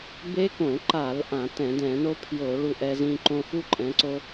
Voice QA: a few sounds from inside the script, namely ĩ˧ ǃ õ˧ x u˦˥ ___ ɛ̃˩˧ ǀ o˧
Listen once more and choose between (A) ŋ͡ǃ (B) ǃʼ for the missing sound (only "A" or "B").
B